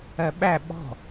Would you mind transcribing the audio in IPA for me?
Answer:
ɜ ɓ æ ɓ ɔ̤

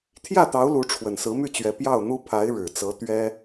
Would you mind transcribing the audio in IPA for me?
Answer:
t̪ʰ j ä˥˩ t̪ ɑ˧˥ ʊ̯ l u˧˥ ʈ͡ʂʰ w ə˨˩ n s ɹ̩˧˥ m y˥˩ t͡ɕ ɥ ɛ˧˥ p j ɑ˥˩ ʊ̯ n̪ u˥ pʰ a˧˥ ɪ̯ ɻ ɻ̩˨˩ t͡s ɤ˧˥ t̪ ɥ ɛ˥

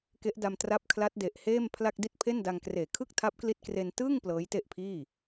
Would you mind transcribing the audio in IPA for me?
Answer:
k e˦˥ ʔ d a˧ m t r a˦˥ p̚ kʰ l a˦˥ t̚ d e˨˩ ʔ h eː˥˩ m pʰ l a˥˩ k̚ d i˦˥ t̚ pʰ e˥˩ n d a˧ ŋ k r eː˨˩ kʰ ɯ˥˩ k̚ tʰ a˦˥ p̚ k l i˦˥ t̚ k r e˧ n t ɯː˥˩ ŋ p l ɤː˦˥ j t e˥˩ ʔ pʰ iː˥˩

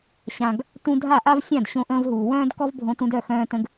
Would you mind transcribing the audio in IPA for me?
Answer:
ɕ ã˩ ɡ | t ũ˧ dʱ a˥˩ ʔ a˥ v sʲ ã˥˩ d ɕ õ˧ ʔ ə̃ː˧ v ɦ uː˩ w œ̃ː˥ d k ɔ˥ v bʱ õ˧ t ũ˧ d œ˥˩ x œ̃ː˧ t ə̃˧ ɡ

